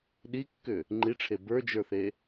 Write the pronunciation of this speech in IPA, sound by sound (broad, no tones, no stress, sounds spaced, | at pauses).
ɗ i kː ʏ | ŋ͡ǃ i ʈ͡ʂʰ e b ə˞ d͡ʒ ə˞ θ e